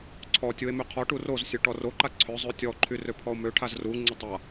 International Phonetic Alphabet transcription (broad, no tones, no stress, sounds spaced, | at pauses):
ǀʰ ɔ tʲ u e̯ m ø qʰ ɔ ʈ u r o z sʲ œ ʈ ɔ r o ǃ a ǀʰ œ zˤ ø tʲ ɔ ǃʰ y r ø pʰ ɔ o̯ m ø ʈʰ a z r u ŋ͡ǀ ə tˤ a